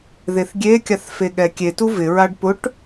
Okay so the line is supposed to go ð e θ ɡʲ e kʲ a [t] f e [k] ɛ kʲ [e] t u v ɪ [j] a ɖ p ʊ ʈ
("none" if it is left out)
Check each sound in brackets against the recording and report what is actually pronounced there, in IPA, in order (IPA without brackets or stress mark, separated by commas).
θ, ɠ, e, ɹ